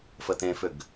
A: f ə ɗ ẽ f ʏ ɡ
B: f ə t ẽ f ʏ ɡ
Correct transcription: B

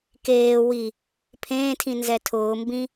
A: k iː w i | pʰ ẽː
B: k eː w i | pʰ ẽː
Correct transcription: B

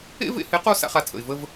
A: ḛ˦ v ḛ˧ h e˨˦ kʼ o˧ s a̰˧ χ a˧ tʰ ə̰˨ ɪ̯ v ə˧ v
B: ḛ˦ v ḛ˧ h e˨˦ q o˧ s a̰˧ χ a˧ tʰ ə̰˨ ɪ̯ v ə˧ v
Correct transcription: B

